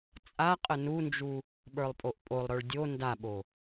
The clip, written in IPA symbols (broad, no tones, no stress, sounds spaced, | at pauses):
t͡sʼ a qʼ ə n u n d͡ʒ u | ɓ ə˞ lˠ pʼ o ʔ pʼ o lˠ ɾ ə˞ ɭ dʲ o n d a ɓ o